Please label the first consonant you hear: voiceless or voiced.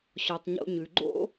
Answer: voiceless